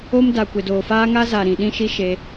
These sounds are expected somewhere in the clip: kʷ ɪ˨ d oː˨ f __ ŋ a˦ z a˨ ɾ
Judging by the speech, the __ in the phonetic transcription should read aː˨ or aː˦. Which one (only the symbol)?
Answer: aː˦